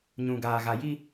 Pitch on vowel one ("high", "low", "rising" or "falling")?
low